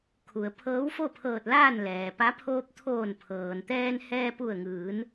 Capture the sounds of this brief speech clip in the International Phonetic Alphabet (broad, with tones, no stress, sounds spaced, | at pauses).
kʰ u˩ ə̯ pʰ ɤː˧˥ w f o˥˨ pʰ ɤː˧˩ t̚ l aː˥˨ n l ɛː˩ p a˧˥ pʰ oː˧ p̚ t̪ʰ oː˧˩ n pʰ ɤː˩ n t̪ ɛː˧ n h ɛː˧ p u˧˩ ə̯ ŋ ɯː˩˧ n